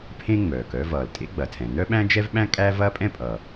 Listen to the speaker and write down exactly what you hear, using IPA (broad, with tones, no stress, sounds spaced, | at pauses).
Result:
pʰ ẽ˥ ŋ͡m œː˩ k œ˥ v ʌː˩ l tʼ ḛ˥ ɡ͡b ɐ˩ tʰ ɛ̃˩ n œ˥ ɓ æ̃˥ d͡ʒ ɛ˥ v ɓ æ̃˥ kʼ æ˥ v ɐː˥ pʼ ɛ̃˥ pʼ ʌː˩